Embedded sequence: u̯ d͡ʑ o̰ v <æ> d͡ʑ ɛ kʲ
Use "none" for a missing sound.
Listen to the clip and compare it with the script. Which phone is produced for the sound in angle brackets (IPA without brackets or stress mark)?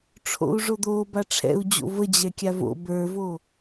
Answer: ə